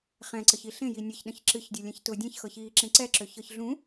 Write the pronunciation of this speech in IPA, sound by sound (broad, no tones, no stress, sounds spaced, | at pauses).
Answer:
χ ɛ̃ ǀ ə ç i ɬ ẽ j i nʲ ə ç ɗ ə̃ ç ǁ ɨ ç dʲ ʊ lʲ ɛ̃ ç t ʊ dʲ ɛ̃ ç x ɤ ç iː ǁ ẽ ǀ ɛ ǁ ø ç ɤ ç ɮ ũ